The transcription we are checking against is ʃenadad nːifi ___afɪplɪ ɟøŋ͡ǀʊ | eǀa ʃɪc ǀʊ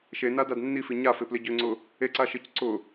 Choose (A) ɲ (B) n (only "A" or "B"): A